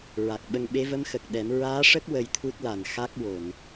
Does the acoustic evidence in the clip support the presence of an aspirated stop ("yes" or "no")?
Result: yes